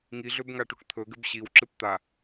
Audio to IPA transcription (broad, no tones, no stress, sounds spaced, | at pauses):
ŋ i ɮ ø b ŋ a ʈ u ʈ t̪ʰ ɵ ɡ ɘ b ɕ i w ǁ ɨ p t̪ a